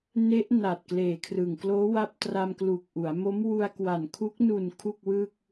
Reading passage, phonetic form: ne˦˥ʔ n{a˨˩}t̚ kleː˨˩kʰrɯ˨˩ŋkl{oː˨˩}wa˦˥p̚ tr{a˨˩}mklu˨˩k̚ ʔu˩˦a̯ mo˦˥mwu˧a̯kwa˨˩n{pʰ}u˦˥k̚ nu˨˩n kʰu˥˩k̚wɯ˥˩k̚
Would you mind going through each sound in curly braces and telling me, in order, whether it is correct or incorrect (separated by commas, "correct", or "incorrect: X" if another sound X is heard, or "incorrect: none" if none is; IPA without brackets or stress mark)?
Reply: correct, incorrect: oː˦˥, incorrect: a˧, incorrect: kʰ